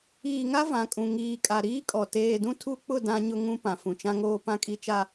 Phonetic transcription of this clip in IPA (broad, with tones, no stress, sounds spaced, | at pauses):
iː˨ ŋ a˦ v ã˨ kʼ ũ˨ ŋ iː˨ kʼ a˨ ɾ iː˦ kʼ ɔ˨ t eː˨ d ũ˦ tʰ u˦ k͡p ʊ˦˨ d ã˦ ɲ ʊ˦ ŋ ũ˦ p ã˨ f ũ˨ t͡ʃ ã˦ ŋ oː˦ p ã˦ kʼ i˦ t͡ʃ a˦